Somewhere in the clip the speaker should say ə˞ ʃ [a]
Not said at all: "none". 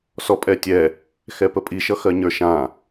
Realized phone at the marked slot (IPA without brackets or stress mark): ã